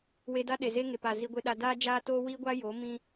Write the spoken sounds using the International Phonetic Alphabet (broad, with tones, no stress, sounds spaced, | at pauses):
w e˧ d a˦ ɗ e˨ z eː˦ ŋ e˨ p aː˨ z i˧ ɡʷ e˧ ɗ a˧ d aː˦ d͡ʒ aː˦ t oː˦ w iː˦ ɡʷ a˦ j oː˨˦ m ĩ˧